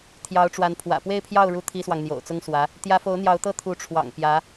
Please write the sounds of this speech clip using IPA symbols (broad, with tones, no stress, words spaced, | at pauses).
t̪ʰjɑ˧˥ʊ̯ʈ͡ʂwa˧˥npʰwä̰˨˩ pwe˥˧ɪ̯pʰjɑ˥˩ʊ̯ɻu˧˥ t̪ʰi˥swɑ˨ŋ n̪jo̰˨˩ʊ̯t͡sʊ˥ŋswä˧˥ | t̪jä˧˥fo˧˥ʊ̯ n̪jɑ˧˥ʊ̯t̪ɤ˥ t̪ʰu˧˥ʈ͡ʂʰwɑ̰˨˩ŋ pjä˧˥